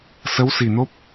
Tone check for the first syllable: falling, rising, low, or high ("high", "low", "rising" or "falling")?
rising